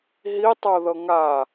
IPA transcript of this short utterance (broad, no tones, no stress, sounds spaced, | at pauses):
ɦ i tˤ o ð ɤ ŋ a